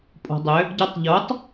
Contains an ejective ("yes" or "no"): yes